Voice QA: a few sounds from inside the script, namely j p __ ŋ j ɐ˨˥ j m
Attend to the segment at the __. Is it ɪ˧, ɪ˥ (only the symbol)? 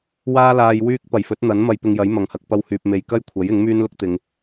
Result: ɪ˧